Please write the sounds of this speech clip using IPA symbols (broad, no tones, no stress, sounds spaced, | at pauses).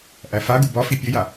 ʔ æ f a ɡ u b ɒ f i pʲ ɘ j a